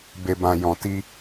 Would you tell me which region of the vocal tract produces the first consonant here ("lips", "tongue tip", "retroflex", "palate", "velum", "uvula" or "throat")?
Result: lips